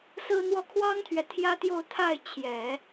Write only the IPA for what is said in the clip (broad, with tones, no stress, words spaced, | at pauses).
sɹ̩˥n̪wɔ˥ kʰwɑ˥ŋt̪ʰɥɛ˨ t̪ʰjä˥t̪jo˥˧ʊ̯t̪ʰa˥˩ɪ̯ t͡ɕʰjɛ˨˩˦